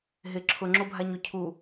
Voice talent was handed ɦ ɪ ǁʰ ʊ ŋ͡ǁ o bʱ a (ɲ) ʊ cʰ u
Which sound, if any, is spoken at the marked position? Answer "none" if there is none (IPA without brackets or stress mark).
ɲ